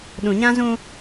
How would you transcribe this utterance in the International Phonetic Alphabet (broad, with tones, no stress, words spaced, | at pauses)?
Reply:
ɗũ˨ɲã˦zũ˦